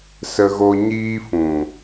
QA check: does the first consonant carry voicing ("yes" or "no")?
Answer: no